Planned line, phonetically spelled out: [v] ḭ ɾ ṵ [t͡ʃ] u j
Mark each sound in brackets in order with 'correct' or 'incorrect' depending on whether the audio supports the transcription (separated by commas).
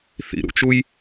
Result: incorrect, correct